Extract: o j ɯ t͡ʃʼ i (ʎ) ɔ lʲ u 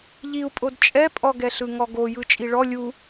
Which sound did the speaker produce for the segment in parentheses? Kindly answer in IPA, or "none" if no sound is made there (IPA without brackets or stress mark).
ɭ